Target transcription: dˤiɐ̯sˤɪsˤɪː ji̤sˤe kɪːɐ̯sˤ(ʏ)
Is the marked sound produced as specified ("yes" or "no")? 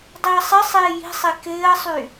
no